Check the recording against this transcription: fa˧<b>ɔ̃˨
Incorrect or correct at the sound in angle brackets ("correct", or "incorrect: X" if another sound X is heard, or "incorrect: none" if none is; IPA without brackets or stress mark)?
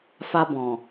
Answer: correct